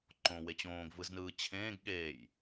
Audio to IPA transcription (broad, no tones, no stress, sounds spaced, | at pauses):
ǃ õ w e t͡ɕ õː ɡ v ɯ z n ɯː t͡ɕʰ ẽː ɡ ɠ eː j